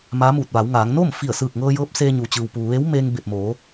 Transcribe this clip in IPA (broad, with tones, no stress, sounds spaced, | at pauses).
m aː˧˥ m uː˧˩ t̚ ʋ a˩˧ w ŋ aː˩˧ ŋ n oː˥˨ m f i˧˩ ə̯ s ɯː˧˩ k̚ ŋ ɤː˧ j ɤː˧˥ p̚ s eː˧ ɲ u˩ t͡ɕ ɯː˩ w p uː˩ ʋ eː˧˥ w m eː˧ ŋ b e˧˩ p̚ m oː˩˧